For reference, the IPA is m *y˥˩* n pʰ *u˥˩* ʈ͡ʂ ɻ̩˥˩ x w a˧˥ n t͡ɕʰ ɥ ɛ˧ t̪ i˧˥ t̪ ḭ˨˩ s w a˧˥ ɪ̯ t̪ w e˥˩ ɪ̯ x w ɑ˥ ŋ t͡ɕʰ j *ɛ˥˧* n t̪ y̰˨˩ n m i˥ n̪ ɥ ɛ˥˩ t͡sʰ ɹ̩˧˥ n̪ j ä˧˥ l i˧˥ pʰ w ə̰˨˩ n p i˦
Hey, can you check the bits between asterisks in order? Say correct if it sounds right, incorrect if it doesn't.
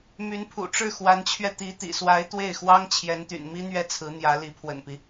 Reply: incorrect: y˧˥, incorrect: ṵ˨˩, incorrect: ɛ˧˥

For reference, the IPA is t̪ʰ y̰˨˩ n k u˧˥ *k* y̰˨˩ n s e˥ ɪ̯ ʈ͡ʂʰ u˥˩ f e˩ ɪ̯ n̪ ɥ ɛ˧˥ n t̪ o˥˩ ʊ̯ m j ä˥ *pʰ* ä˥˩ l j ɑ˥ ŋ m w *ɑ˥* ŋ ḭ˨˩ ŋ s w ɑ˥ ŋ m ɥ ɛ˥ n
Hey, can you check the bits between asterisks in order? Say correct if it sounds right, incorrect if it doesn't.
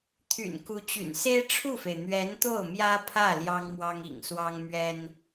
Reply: incorrect: t͡ɕ, correct, correct

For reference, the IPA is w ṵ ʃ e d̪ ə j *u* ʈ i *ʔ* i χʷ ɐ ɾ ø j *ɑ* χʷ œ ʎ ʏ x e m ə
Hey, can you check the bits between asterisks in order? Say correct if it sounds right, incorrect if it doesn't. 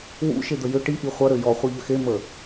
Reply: incorrect: ʏ, correct, incorrect: ɔ

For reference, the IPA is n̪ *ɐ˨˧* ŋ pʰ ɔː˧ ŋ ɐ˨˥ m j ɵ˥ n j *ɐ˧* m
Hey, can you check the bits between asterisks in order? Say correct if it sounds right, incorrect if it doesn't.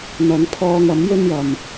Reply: correct, incorrect: ɐ˨

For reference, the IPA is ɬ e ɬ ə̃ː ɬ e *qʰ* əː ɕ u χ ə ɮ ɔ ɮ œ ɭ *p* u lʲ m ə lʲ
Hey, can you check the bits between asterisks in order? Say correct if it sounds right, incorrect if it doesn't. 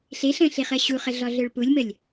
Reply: incorrect: χ, correct

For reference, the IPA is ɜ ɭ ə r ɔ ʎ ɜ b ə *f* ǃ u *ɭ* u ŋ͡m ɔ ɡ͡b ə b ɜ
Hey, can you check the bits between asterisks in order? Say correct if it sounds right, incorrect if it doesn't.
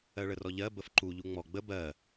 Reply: correct, incorrect: ʎ

